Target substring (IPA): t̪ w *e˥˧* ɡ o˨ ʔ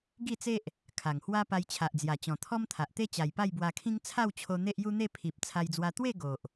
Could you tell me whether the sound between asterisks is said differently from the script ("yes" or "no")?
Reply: no